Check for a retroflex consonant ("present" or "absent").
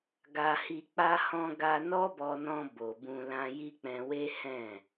absent